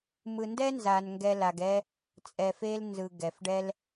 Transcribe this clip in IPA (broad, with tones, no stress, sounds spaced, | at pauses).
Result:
m ɯ˨ n d ɛ˦ n z a˨ n ŋ ɡ ɛ˧ l a˨ ɡ ɛ˦ | t͡sʼ ɛ˨ f e˧ l n z ɯ˨ ɡ ɛ˨ f ɖ ɛ˦ l